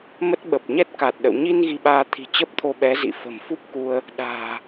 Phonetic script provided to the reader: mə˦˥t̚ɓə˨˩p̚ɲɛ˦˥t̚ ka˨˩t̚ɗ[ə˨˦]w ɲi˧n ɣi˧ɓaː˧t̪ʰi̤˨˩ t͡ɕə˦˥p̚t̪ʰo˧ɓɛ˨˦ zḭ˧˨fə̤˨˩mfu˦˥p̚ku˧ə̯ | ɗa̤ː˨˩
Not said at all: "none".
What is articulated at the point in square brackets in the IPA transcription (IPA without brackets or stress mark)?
ə̰˧˨